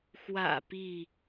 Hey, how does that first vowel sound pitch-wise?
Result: low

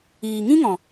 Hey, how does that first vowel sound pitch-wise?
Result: low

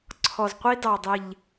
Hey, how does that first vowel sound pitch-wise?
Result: low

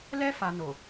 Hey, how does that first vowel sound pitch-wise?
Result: high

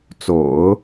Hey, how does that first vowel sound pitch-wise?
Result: low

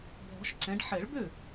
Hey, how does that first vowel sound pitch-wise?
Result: rising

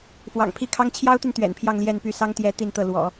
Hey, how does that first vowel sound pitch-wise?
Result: low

